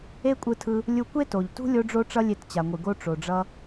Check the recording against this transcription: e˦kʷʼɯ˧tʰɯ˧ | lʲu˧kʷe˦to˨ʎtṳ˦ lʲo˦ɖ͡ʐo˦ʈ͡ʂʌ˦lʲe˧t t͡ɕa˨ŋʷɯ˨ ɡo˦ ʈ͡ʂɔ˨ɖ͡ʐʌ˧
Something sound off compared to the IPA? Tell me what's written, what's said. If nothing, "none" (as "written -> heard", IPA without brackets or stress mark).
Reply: ɔ˨ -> o˨